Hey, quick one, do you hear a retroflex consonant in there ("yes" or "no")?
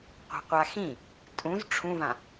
yes